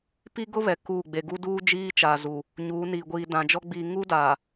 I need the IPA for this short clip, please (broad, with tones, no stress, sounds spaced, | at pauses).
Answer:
p i˦ ɡ ʊ˦ β ɛ˨ k u˦˨ ɡ͡b e˨ ɡ u˦ d uː˦ d͡ʒ iː˦ t͡ʃ a˨ z u˨ | ɲ uː˨˦ n iː˨ ɡʷ iː˨ d ã˨ d͡ʒ ɔ˦ ɡ͡b i˨ ŋ u˦ d a˨